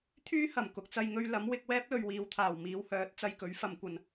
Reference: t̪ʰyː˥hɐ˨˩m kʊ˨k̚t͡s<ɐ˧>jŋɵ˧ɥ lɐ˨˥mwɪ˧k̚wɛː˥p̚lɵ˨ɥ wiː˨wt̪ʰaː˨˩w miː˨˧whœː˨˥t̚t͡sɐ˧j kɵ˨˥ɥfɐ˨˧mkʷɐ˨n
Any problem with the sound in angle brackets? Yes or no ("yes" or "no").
no